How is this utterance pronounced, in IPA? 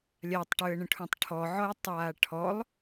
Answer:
lʲatˤʈʉə̯ɳə̃ʈʰũtˤ ʈʰɔʕɔjtˤaː ʈʰɔlˠ

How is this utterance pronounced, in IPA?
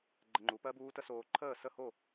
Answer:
ɡ͡ǃə˧ŋ͡ǃu˩˥pɜ˦˥buː˦˥ tə˦˥soː˧ǃʰəː˥˨ sə˥˨ho˥˨

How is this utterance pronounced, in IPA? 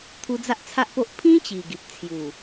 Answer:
t̪ʰu˧d͡za˦ʔt͡sʰa˦ʔpo˦ʔ pʰĩ˦t͡ɕi˨˩ ɡi˨p̚t͡sʰju˨˩

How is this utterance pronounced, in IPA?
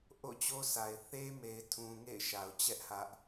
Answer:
ʔo̰˦˨ t͡ɕo˦sʰa˨ɪ̯ θe˦me˨ɪ̯tʰũ˨ ŋḛ˦˨ɪ̯ʃa˨ʊ̯t͡ɕɛ˦ʔ hä˦ʔ

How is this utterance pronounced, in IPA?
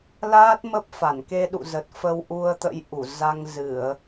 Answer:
laː˦˥t̚ mə˦˥p̚fa˧˩n ke˧ɗṵ˧˨zə˨˩t̚ fə˧wʔu˧ə̯t̪ə̰˧˥jʔu˧˩ za˧ŋzɨ˧˩˨ə̯

